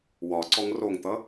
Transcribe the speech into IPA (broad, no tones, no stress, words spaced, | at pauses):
wɒǀɔŋ roŋt̪ʌ